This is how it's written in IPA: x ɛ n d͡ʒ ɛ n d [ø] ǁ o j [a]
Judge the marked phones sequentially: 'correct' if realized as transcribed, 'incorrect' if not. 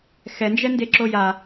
incorrect: e, correct

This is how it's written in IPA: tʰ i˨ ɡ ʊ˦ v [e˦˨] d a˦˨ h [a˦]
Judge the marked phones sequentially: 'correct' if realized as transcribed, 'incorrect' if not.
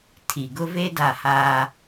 incorrect: e˦, incorrect: aː˦

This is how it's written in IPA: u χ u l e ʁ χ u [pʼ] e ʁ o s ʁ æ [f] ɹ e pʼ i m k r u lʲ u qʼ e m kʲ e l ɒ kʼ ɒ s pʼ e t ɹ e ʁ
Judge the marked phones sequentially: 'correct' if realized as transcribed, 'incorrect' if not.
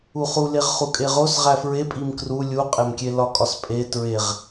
incorrect: kʼ, correct

